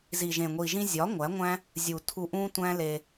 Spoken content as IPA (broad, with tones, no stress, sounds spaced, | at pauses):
z i˨ ʒ ẽ˨ ŋʷ i˨ ʒ ĩ˧ zʲ ɒ˨˦ ŋʷ æ˨˦ ŋʷ æ̃˦ | zʲ u˨ tʰ u˧ ʔ ũ˦ tʷ æ̃˦ l e˧